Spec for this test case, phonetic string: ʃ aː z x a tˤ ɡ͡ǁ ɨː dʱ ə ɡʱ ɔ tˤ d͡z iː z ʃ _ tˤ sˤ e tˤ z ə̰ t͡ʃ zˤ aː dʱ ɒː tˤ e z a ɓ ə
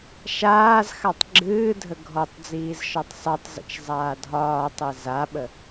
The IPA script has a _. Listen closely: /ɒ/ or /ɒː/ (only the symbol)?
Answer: ɒ